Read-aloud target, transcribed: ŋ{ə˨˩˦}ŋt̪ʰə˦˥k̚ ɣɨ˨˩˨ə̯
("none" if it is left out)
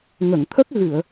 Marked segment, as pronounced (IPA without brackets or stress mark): ə˨˩˨